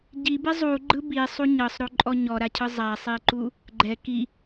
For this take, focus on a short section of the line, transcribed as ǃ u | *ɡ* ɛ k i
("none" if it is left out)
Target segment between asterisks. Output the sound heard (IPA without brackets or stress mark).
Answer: ɡ͡ǃ